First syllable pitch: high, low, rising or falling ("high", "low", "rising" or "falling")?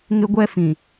high